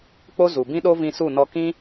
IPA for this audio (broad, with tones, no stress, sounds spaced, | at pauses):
k͡p o˦ z u˨ b ĩ˦ ɗ o˦ v ĩ˧ s u˦˨ n ɔ˧ k ĩ˦